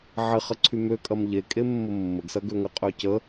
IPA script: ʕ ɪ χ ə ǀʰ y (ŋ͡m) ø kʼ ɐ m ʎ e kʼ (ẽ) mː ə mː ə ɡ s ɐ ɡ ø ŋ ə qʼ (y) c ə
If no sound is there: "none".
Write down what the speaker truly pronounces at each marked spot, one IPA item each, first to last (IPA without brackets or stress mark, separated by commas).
m, e, ø